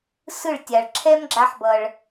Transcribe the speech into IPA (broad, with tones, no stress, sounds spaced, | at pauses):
s ɯ˦˨ ɭ tʲ a˨ ɭ ǁʰ ɛ˦ m ɡ͡ǁ a˧ ħ b ʌ˨ ɭ